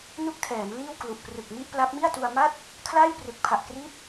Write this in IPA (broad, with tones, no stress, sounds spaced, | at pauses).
n u˥˩ k̚ tʰ ɛː˩˦ m l iː˥˩ w k l u˨˩ ʔ p r ɯ˨˩ k̚ m i˥˩ ʔ p l a˦˥ p̚ m i˥˩ a̯ t u˧ a̯ m a˥˩ t̚ | kʰ l a˥˩ j p r ɯ˨˩ k̚ pʰ a˨˩ ʔ k r i˦˥ t̚